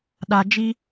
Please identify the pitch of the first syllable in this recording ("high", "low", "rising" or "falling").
low